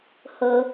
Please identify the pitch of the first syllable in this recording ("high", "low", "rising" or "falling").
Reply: low